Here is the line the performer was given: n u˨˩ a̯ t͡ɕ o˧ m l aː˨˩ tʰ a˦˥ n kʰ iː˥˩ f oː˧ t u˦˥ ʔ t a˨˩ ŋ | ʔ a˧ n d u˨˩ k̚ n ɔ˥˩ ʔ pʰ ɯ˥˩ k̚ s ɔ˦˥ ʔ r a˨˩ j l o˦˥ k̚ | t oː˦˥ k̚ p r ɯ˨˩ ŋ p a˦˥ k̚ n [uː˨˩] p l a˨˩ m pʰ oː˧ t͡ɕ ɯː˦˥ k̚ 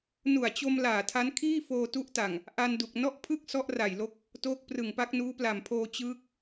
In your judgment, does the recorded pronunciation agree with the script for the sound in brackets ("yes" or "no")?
no